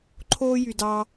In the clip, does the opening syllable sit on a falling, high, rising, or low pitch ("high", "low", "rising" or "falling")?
high